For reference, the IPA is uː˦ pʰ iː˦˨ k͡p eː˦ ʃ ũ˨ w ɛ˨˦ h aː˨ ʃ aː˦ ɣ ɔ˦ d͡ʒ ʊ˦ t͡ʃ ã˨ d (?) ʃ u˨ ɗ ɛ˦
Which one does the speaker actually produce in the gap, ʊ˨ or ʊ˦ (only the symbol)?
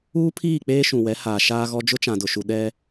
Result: ʊ˨